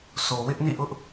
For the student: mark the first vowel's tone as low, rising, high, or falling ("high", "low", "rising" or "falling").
low